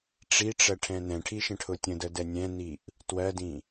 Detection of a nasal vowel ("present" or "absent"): present